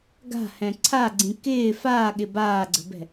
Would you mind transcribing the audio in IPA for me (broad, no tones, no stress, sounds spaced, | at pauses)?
ɡ a̤ h ɛ̃ ǀʰ a ɡ͡ǀ ĩ k ɪː f aː ɠ ɪ b aː ɡ͡ǀ ə̤ b ɛ̤